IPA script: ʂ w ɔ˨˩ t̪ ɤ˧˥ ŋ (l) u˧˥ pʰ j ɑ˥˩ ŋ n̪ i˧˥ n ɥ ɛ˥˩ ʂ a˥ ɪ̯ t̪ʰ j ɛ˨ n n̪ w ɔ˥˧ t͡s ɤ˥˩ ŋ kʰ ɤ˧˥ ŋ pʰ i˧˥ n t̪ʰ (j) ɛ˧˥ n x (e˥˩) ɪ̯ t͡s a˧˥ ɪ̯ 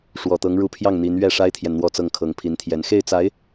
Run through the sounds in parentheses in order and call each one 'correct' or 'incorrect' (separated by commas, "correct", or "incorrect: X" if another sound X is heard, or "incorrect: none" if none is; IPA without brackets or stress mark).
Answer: incorrect: ɻ, correct, correct